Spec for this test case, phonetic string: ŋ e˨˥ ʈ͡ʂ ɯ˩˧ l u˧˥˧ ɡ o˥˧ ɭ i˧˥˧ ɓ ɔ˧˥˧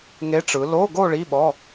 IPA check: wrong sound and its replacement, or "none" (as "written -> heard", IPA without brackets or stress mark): u˧˥˧ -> o˧˥˧